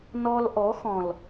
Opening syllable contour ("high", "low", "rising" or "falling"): high